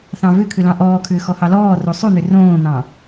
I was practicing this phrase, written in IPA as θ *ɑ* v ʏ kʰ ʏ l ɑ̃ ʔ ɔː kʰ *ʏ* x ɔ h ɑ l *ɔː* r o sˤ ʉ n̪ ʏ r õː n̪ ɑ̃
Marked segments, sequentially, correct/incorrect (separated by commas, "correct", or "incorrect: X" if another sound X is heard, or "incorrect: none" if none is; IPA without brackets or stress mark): incorrect: ɑ̃, incorrect: ʏː, correct